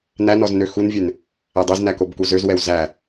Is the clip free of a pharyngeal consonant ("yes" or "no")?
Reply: yes